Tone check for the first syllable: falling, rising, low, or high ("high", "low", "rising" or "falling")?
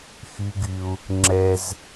high